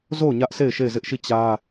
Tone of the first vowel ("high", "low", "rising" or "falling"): falling